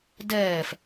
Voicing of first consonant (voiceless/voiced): voiced